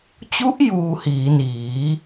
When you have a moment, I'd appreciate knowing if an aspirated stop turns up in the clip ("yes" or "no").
no